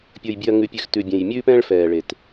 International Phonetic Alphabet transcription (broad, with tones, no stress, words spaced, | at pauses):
pʲə˞˩jbʲʉ˩ɐ̯ŋʉ˩pʲʉ˩x tʉ˩bʲẽ˩j mʲʉː˧pɛ̃ː˧ɭfɛː˩ ɭe˩t